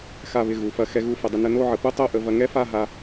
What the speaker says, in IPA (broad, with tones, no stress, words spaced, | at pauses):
xa˧˩βɪ˧˩ ɣu˩˧fɐ˧ xɛ˧ɣu˧fə˩˧dˤɪ˧ nə˧no˥˧ʕə˩˧ pu˥tˤo˥˧ʔə˧ vɐ˧ŋɛ˥fa˥˧ɦa˧